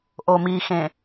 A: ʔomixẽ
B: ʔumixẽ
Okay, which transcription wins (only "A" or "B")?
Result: A